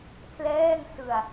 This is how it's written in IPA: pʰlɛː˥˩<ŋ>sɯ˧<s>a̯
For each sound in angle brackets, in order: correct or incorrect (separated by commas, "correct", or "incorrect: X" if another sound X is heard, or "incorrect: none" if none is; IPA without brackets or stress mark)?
correct, incorrect: none